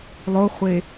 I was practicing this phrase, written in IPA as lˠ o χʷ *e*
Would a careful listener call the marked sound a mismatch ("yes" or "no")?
no